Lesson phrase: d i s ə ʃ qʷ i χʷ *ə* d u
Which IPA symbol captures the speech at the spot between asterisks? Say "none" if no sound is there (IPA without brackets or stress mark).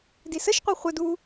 ə